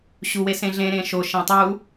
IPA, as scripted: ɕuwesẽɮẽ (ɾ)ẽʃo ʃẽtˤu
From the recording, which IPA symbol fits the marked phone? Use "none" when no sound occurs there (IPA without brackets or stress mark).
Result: ɾ